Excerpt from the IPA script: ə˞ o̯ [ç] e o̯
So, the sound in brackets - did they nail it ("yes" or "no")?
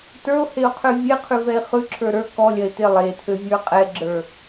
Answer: no